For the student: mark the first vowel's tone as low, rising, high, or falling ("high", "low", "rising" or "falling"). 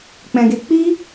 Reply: low